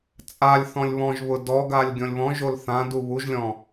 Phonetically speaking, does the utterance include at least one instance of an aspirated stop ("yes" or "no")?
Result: no